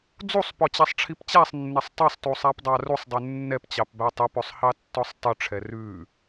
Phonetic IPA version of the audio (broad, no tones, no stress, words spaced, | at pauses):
d͡zusˤpɔt͡ɕæsˤʈ͡ʂʰip t͡ɕæsˤnːɛsˤ tˤɛsˤtusˤæpdˤɑ rusˤdˤʉ nːɛpt͡ɕɑpbæ tˤɛpɵsˤhɑtːɔsˤ tˤʉʈ͡ʂʰɛ rʉ